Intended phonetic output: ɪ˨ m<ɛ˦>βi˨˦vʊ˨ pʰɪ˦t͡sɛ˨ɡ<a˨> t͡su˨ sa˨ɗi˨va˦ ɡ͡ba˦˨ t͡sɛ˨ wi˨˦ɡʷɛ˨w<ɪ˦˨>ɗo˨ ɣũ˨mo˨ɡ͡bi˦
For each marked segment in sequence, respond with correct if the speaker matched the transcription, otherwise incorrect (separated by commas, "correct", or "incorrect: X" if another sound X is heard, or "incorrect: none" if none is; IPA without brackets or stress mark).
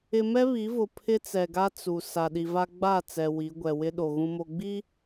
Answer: correct, incorrect: a˦, incorrect: ɪ˦